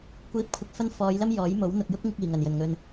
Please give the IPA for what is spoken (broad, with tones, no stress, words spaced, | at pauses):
kʷiː˨˥p̚kʷʰɪ˨k̚ fɐ˥n fɔː˨˧jlɐ˥m jɔː˨˥jmo˨˥w n̪ʊ˨k̚jʊ˥k̚ŋɪ˧k̚ iː˨˩ŋɐ˨˩n jɵ˨˩nŋɵ˨n